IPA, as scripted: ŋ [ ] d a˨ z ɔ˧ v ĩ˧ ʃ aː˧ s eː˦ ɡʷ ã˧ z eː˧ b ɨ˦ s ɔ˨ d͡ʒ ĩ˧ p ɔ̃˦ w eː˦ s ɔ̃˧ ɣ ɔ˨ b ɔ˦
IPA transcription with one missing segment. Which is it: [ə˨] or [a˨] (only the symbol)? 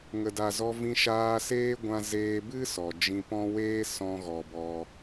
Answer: ə˨